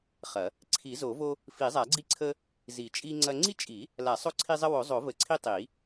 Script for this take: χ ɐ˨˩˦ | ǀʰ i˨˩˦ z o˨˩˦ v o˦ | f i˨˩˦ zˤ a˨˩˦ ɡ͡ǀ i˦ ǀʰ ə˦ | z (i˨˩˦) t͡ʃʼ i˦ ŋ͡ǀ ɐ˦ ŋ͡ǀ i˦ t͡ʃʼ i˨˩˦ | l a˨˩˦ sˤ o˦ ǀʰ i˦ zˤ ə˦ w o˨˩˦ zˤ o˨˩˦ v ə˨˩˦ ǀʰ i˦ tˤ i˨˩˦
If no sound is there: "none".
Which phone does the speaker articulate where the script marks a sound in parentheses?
i˨˩˦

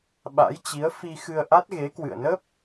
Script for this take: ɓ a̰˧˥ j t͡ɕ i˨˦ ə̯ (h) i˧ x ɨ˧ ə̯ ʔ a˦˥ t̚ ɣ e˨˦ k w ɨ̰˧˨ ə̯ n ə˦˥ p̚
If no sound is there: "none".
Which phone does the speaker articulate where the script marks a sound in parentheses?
f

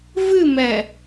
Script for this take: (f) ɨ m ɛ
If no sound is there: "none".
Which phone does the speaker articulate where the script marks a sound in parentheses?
v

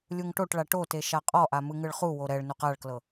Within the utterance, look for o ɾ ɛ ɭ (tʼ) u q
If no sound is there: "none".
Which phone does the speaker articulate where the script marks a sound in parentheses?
n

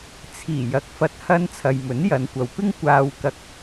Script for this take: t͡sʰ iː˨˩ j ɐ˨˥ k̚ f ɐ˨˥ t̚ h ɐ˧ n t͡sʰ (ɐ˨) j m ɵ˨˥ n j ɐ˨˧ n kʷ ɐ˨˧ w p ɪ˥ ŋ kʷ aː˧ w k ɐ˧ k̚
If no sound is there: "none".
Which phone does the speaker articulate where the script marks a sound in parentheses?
ɐ˨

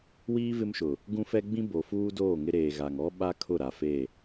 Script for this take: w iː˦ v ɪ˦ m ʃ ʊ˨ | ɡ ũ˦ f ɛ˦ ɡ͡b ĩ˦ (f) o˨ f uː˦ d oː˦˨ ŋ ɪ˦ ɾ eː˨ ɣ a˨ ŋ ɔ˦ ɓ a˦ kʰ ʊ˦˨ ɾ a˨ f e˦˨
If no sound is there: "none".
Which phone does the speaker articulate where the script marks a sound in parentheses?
b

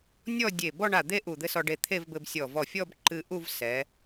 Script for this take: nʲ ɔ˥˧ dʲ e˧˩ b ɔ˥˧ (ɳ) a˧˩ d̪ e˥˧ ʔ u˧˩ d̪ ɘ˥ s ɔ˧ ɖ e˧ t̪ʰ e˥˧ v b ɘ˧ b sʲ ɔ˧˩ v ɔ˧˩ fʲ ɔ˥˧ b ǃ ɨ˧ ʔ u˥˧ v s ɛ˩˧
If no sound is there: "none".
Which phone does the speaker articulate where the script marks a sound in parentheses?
ɳ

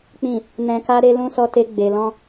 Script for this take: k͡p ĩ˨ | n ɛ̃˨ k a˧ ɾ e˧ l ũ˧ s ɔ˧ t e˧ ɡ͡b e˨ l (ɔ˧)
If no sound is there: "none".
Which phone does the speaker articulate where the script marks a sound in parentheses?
ɔ̃˧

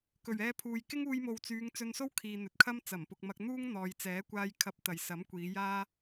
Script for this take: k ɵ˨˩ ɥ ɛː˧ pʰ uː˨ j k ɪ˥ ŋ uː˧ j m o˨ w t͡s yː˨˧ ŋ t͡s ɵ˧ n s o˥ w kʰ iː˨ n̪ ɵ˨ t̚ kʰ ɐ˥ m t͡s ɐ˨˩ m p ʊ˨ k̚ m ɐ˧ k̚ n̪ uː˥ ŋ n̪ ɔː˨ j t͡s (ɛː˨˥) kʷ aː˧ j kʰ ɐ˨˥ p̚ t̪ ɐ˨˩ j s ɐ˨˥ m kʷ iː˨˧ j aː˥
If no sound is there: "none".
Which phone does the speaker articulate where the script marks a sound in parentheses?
ɛː˨˥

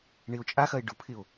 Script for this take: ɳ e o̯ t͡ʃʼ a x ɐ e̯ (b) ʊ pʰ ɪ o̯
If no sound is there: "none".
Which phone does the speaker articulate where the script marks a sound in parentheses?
ɖ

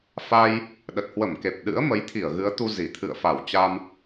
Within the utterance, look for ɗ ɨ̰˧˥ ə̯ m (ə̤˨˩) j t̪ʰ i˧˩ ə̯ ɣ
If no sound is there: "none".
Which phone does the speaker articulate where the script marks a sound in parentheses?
ə˨˦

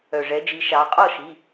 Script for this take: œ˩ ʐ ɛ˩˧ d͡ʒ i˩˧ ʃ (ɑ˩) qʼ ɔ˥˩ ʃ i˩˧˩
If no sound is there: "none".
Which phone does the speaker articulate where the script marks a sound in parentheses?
ɑ˩˧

